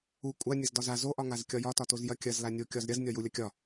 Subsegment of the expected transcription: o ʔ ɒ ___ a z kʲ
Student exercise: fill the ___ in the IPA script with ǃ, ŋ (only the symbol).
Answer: ŋ